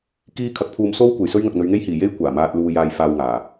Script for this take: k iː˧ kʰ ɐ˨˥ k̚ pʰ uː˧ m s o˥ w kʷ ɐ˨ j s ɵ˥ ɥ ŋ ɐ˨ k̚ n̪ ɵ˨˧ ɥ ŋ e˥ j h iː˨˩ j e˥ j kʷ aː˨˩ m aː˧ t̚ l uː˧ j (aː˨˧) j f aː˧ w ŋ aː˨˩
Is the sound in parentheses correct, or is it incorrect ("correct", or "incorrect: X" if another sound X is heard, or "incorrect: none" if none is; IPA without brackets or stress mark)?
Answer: incorrect: aː˧